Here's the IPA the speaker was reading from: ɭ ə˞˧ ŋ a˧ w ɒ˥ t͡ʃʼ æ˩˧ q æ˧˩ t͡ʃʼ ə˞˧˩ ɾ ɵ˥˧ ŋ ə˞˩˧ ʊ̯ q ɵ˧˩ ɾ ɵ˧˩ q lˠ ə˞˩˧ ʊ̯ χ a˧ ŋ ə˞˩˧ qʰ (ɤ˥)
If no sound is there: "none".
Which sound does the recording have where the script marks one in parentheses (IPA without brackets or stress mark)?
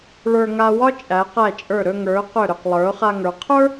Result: ə˞˥